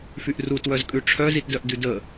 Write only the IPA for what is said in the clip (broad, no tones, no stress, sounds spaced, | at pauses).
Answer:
f y ʔ r u t w œ z kʼ ʉ ʈ͡ʂʰ œ z i t d œ ʔ d ʉ d ə